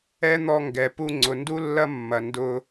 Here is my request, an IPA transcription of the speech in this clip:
ɛ˦ n̪ ɔ˧ ŋ ɡ ɛ˨ p u˧ ŋ͡ǀ ʊ˨ n d u˦ lː ɐ˦ mː ɐ˨ n d ʊ˦

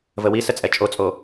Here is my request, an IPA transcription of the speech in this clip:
v ə w i s ə t͡sʼ ɛ t͡ʃʼ o t͡sʼ o

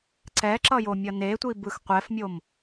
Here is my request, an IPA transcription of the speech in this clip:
ǀ ɛ ǁ ʌ j o mʲ ʌ n e tʷ i b ɯ x qʷ ɛ f mʲ o m

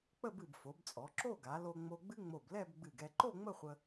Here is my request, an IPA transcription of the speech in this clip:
k͡p ə˥˧ b ɨ˧˩ b f o˩˧ b t͡sʼ ɔ˩˧ ǁ o˥˧ ɡ a˩˧ l o˧ ŋ͡m o˧ ɡ͡b ɨ˥ ŋ͡m o˧˩ b l ɛ˥˧ b ɡ͡b ɨ˧˩ ɡ ɛ˥˧ ǃ o˥˧ ŋ͡m ə˥˧ χʷ ə˧

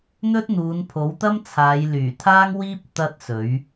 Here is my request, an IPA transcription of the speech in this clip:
n̪ ɵ˥ t̚ n̪ uː˨˧ n pʰ o˨˥ w t̪ ɐ˥ m t͡sʰ aː˨˧ j l yː˨˩ t̪ʰ aː˥ ŋ w iː˥ p̚ t̪ ɐ˥ t̚ s ɵ˨˥ ɥ

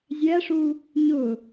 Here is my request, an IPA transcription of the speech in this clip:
zʲ æ ʂ u | ɲ ʊ

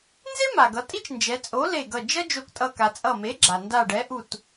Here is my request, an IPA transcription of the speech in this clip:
n z e˥ m a˩ ɡ ʌ˩˧ tʼ i˥ t͡ʃ n d͡ʒ ɛ˩˧ t͡sʼ o˨˥ l e˧˩ ɡ ʌ˧˩ d͡ʒ ʌ˥ d͡ʒ o˧˩ k tʼ ʌ˧˩ k a˩ t͡sʼ ʌ˧˩ m e˨˥ ɡ͡ǁ a˩ n d a˧˩ ɖ ɛ˨˥ ʔ u˧˩ t

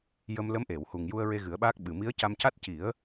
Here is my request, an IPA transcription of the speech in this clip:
j ə˧ m l ə˧˥ m ʔ e˨˩˨ w h u˨˩ ŋ j u˧ ə̯ ɹ e˧ ɣ ɨ˨˩˦ ə̯ ɓ aː˦˥ k̚ ɓ ɨ˨˩ m i˧˥ ə̯ c a˧ m c a˦˥ t̚ c i˨˩˦ ə̯

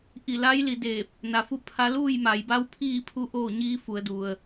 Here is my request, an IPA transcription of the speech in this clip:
ʔ i˧˩ l a˧˥ j l i˩˧ d eː˧˩ p̚ | n a˩ f u˥˨ pʰ a˧ l uː˥˨ j m a˩˧ j b a˧˥ w pʰ iː˥˨ pʰ u˧˥ ʔ oː˥˨ ɲ iː˧˥ f u˩˧ ə̯ d u˩ ə̯

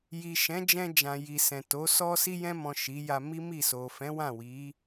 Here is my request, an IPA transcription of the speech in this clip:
j i˨ ʃ ɛ̃˨˦ d͡ʒ ɛ̃˧ d͡ʒ ã˨ j i˨ s ɛ̃˨ t o˨˦ s ɔ˧ s i˧ j ɛ̃˧ m ɔ̃˨ ʃ i˨˦ j a˧ m i˦ m i˦˨ s o˨ f ɛ̃˨˦ w ã˦˨ w i˨˦

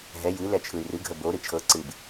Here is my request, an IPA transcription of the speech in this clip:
ɦ ɛ j ɨ l ɛ t͡ʃʰ ɯ y̯ r ɨ ɡʱ ə b o ɾ ɨ t͡ʃʰ ɤ ǀ ɨ b

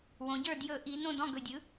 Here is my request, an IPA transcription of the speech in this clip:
w õ˩˧ ɟ ə˞˦˨ d j ɵ˧˩˧ ʔ i˩˧ n õ˦˨ d ɔ̃˦˨ ɡ ɵ˨˩ dʲ ɯ˩˥

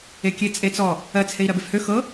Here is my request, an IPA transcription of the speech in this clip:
e kʲ e t͡sʼ e t͡s ɔ | ɜ t͡s h e i̯ ɾ ɜ b e f h ø x ɤ

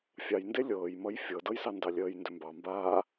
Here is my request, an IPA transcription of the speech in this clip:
fʲ ɑ j n d e lʲ ɤː j m ʌ j fʲ ɤ d ɤ j s ɑ n d ɑ lʲ əː j n d ʏ m b ɑ m b aː

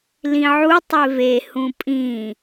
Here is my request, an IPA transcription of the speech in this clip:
l ĩ ʕ u tˤ e v e h ũ pʼ ĩ

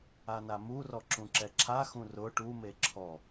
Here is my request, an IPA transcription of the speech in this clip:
a n a m u r ɔ ǁ ũ ǁ ɛ ǁʰ a x ũ r ʊ ʈ u m e ǁʰ ɔ

